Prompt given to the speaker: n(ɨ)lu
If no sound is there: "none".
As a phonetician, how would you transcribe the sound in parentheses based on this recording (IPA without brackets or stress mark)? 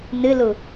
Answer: ɨ